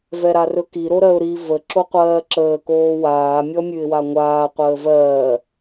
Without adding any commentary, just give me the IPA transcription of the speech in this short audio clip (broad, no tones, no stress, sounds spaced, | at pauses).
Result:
v ɛ ɾ a r ɵ k i ɾ o ɾ ɜ ʊ̯ ɾ i v ə ǁ o qʷ ɜː ǁ əː k oː w aː mʲ ɔ mʲ ʉ ɪ̯ w a ŋʷ aː qʷ əː v ɜː